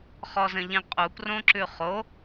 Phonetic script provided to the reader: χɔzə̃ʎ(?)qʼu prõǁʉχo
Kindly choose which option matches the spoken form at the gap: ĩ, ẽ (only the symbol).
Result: ĩ